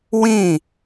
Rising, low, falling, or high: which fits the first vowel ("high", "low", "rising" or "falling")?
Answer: falling